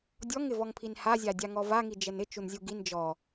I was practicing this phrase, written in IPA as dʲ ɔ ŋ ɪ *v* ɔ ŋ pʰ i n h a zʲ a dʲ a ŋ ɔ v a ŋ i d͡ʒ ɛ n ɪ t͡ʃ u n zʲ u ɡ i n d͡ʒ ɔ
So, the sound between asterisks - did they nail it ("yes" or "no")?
yes